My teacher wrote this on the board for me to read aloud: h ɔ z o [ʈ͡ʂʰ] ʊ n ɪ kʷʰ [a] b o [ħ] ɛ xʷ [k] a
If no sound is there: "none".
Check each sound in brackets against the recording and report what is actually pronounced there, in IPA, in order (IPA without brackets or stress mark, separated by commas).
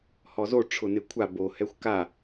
ʈ͡ʂʰ, a, h, k